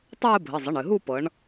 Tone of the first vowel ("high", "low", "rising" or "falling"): falling